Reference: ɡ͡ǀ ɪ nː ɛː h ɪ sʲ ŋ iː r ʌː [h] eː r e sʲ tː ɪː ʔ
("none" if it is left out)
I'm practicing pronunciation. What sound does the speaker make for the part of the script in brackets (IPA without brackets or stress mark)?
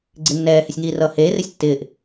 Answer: h